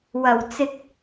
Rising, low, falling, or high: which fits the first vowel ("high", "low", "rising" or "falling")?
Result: low